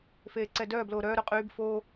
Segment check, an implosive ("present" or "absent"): absent